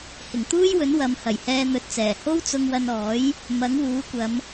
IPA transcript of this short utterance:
hɪ˨˩ŋt̪uː˥jwɵ˨˥n wɐ˨˧m hɐ˨˩jhɛː˧n̪ɵ˨˥t̚t͡sɛː˨˩ ho˥wt͡sʊ˧ŋwɐ˧nɔː˨˥j | mɐ˨˥ŋwuː˨˥kʷɐ˨˧m

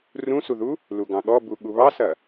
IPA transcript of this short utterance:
rũsuðu | luɡɑ̃ɠɔbu ɠuβɑsɐ

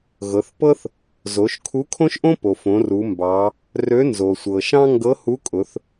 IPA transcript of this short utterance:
ɣɤ˩˧θpɤ˥θ | zo˩˧ʃkʰu˧˥kʰõ˥ʃʔõ˥ po˩fõ˩˧ ru˩˧mbɑ˩˧ | rø˧˥nzo˩sʷɤ˩ʃɑ̃˥ ŋɡɤ˧˥hu˧˥ kʼʊ˩˧θ

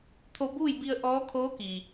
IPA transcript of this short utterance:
t̪ʰo˧buː˥˨jbi˧ə̯ ʔɔː˧˥kʰoː˧˥ki˩

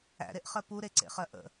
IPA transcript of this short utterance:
æ̰ɾeʔχɜ puɾeǀḛχɜ ʔə̰

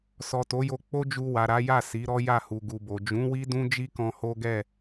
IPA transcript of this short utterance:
sɔ˨to˨˦jo˧ k͡po˦d͡ʒu˧wa˨ ɾa˨˦ja˦˨ si˨˦ɾɔ˦ ja˦˨hu˨ɡu˨bo˨ d͡ʒũ˨˦wi˦ dũ˦ d͡ʒi˦kɔ̃˧ho˦ɡɛ˦˨

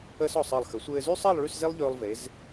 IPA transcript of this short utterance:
əː˥sɔ˧˩sˤəː˧˩lˠ xə˩˧sʷɘː˧zy˥sˤəː˥˧lˠ ɭy˥˧sze˥lˠ ʎɵː˧lˠve˩˧z

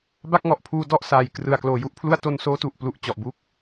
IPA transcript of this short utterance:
ba˥˩k̚ŋɔ˨˩ʔpʰuː˧dɔ˥˩ʔ saː˨˩jkrɯ˨˩a̯ kloː˨˩ju˥˩ʔpʰlu˥˩a̯ to˧nsoː˦˥tu˨˩ʔplu˨˩ʔ t͡ɕɔ˨˩ʔbu˥˩k̚

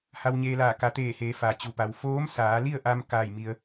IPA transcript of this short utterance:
ha˧wɲeː˧laː˧˩ ka˩˧t̪eː˧˩heː˩˧ fa˩ t͡ɕu˩pa˩w foː˧˥msaː˩˧li˥˨ə̯ʔa˧m kaː˥˨jmi˧ə̯

